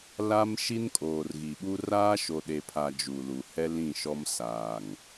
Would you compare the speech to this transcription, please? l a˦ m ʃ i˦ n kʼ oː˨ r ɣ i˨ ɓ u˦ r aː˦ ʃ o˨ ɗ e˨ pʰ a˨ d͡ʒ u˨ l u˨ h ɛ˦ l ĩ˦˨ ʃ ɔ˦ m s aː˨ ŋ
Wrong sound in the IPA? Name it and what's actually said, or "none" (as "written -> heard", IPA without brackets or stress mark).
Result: none